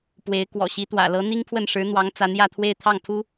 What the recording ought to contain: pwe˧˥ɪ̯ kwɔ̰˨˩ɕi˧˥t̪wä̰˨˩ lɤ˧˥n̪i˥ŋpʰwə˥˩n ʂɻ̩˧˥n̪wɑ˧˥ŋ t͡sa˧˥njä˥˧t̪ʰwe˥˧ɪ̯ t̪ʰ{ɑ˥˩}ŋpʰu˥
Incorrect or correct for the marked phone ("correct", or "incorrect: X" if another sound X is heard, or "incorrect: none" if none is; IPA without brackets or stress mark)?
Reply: correct